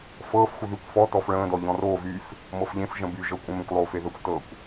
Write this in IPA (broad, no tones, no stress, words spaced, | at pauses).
fɤːfxʷə ðykʷfɔ tɔfɭə̃ːdɔ ʎɔ̃roː vyf | mɤfʎẽf ʒə̃by ʒɤkʷʼə̃mẽkʷ lˠoːfeðəkʷ tɤkʷ